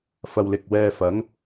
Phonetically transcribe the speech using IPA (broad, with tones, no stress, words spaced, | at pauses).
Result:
fɐ˨w lɪ˨k̚wɛː˧fɐ˨˥ŋ